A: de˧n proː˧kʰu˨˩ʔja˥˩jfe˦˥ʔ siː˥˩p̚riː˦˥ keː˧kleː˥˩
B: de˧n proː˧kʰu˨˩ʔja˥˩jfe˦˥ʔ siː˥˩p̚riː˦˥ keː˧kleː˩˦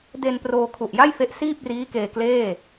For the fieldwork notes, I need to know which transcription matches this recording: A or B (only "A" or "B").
A